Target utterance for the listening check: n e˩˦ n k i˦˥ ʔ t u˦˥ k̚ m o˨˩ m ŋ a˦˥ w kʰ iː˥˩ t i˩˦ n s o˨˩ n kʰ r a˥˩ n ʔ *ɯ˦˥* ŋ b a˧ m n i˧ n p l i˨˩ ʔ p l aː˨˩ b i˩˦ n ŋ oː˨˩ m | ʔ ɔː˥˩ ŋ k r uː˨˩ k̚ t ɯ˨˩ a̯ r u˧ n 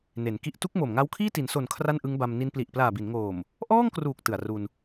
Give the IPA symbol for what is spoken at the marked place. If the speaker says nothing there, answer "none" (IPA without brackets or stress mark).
ɯ˦˥